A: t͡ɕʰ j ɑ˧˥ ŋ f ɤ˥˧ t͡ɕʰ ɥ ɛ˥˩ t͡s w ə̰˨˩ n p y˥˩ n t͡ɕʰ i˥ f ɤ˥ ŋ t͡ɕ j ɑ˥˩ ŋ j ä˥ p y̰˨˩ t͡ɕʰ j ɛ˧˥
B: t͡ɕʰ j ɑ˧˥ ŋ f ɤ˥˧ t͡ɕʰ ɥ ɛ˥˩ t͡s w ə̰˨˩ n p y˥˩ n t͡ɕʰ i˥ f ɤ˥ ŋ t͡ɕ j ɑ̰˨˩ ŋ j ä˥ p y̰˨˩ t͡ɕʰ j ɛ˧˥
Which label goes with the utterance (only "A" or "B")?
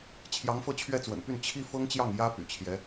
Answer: A